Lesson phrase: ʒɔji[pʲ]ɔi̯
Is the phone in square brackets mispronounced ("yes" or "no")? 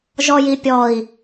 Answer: no